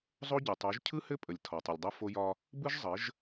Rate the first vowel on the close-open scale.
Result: mid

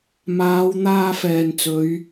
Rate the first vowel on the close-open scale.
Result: open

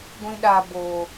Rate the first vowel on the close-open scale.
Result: close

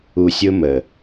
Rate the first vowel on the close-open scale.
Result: close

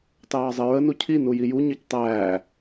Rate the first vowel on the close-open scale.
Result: open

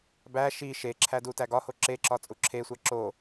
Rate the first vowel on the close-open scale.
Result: open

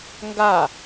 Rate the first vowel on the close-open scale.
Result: open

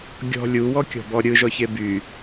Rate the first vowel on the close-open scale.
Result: mid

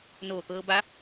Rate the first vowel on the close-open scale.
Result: mid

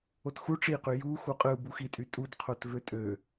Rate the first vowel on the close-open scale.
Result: mid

